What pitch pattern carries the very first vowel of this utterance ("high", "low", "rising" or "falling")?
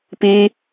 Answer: high